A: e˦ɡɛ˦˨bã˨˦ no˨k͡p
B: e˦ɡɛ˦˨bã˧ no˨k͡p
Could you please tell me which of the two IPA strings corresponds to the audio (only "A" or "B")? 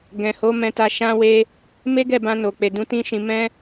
B